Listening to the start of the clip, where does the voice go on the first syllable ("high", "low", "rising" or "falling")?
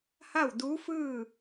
falling